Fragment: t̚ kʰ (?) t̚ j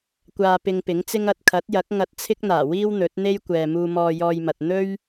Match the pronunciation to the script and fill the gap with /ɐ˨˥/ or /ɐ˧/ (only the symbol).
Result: ɐ˨˥